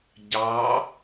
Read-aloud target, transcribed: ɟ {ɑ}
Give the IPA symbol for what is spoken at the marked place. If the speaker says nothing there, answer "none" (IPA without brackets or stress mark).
ɑ